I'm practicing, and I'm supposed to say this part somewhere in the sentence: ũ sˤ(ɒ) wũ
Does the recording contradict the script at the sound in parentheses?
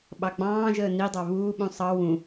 yes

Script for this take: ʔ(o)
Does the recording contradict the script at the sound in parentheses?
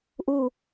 yes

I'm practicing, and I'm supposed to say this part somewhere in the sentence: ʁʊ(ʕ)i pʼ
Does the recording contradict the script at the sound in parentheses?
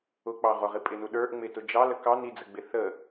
yes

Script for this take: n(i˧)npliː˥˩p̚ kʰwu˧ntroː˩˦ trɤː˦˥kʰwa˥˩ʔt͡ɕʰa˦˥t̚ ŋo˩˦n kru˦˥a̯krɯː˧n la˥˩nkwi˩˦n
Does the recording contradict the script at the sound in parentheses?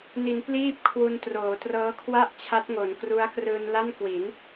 yes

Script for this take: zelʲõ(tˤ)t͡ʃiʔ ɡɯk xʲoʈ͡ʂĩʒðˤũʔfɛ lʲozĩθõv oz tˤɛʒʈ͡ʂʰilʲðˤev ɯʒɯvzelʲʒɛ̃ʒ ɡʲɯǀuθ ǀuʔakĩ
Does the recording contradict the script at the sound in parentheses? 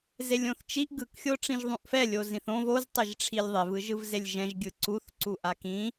yes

